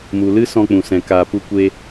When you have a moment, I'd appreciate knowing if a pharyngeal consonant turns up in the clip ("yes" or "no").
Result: no